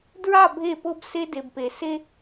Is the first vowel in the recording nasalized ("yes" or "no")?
no